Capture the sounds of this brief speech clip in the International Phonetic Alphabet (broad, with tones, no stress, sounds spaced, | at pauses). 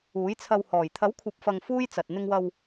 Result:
uː˨˥ j t͡sʰ ɐ˧ w h ɔː˨˩ j t̪ʰ ɐ˨˥ w kʷʰ ɐ˨ p̚ f ɐ˨ ŋ f uː˥ j t͡s ɐ˨ t̚ n̪ ɪ˧ ŋ w ɐ˧ w